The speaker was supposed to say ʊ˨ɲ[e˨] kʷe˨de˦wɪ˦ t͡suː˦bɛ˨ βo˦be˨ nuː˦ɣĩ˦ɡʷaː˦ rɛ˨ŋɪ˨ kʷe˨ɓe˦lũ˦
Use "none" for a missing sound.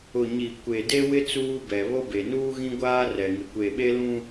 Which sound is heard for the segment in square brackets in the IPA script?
i˨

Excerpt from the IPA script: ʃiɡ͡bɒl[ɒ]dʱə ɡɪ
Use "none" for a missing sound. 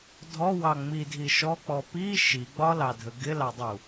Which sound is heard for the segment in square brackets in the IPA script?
ɑ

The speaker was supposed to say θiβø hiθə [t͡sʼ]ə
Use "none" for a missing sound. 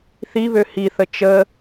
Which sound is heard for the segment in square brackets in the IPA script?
t͡ʃ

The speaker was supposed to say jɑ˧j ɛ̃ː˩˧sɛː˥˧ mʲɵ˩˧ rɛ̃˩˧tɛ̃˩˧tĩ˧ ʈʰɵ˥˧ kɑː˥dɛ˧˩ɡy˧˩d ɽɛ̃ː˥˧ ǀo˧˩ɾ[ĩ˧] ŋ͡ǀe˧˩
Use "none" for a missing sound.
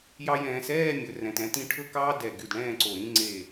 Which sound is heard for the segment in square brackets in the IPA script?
ĩ˥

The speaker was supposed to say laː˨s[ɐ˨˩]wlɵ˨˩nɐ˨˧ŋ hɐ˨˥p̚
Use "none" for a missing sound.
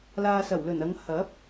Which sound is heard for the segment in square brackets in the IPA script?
ɐ˨˩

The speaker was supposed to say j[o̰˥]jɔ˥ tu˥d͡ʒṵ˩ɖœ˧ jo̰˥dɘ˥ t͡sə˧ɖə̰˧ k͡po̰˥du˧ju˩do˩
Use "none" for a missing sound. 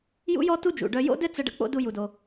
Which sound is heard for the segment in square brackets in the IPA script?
ṵ˥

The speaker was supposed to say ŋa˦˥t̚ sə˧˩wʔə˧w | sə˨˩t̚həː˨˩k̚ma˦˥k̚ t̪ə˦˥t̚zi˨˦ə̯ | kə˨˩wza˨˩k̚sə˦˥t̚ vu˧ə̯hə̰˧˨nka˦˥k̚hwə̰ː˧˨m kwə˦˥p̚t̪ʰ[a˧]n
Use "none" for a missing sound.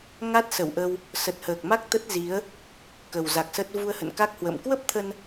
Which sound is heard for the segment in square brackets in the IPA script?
ə˧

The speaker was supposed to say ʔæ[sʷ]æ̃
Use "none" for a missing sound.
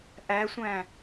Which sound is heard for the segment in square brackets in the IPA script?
sʷ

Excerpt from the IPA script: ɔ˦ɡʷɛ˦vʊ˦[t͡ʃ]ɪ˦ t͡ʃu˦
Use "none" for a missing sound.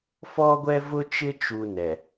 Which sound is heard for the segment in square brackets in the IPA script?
t͡ʃ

